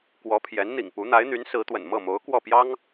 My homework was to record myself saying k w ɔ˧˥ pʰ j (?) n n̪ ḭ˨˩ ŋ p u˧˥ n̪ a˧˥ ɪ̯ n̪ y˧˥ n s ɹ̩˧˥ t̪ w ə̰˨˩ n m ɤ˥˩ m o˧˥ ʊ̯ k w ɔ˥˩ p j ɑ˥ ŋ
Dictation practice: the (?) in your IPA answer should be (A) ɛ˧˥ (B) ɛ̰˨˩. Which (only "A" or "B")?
A